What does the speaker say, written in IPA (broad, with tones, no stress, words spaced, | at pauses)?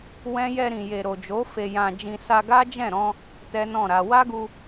wɛ̃˦ jɛ˧ɾĩ˨je˨ ɾo˨d͡ʒo˨˦ fe˧jã˧d͡ʒĩ˧ sa˧ɡa˦d͡ʒɛ̃˦˨ɾɔ̃˧ | tɛ˦nɔ̃˦˨ɾa˧ wa˦ɡu˧